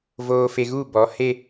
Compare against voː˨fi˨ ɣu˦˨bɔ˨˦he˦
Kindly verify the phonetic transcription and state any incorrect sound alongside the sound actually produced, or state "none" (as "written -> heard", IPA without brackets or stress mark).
i˨ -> e˨